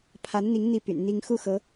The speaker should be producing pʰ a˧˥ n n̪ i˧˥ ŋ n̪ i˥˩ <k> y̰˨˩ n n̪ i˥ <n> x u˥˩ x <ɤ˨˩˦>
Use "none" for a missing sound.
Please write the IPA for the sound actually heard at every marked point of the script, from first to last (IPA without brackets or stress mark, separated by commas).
p, ŋ, ɤ˧˥